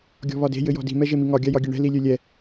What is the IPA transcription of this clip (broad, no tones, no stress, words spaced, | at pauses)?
ɡʲɔ̤βɒde̤ jɘjɔ̤di̤ mɛʒemiŋɒ ɡʲajɒɡʲeɳɛ̤ lilʲølʲɛ